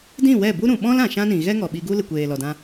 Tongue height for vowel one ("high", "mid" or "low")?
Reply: high